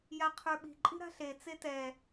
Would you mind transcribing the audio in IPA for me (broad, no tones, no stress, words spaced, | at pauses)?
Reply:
jaqʰə˞ɓi̤ ǃʼi̤ɾa̤ɬe t͡setɛ